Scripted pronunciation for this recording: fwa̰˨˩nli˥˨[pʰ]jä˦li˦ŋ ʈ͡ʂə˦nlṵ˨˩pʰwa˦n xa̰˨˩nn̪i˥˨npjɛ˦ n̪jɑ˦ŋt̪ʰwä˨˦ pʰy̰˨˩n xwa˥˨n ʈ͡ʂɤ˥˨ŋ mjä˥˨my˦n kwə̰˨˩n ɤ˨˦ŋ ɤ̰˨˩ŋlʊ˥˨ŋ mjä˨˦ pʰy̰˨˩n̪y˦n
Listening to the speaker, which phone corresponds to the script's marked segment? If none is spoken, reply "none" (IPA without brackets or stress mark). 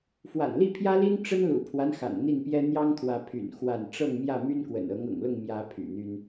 pʰ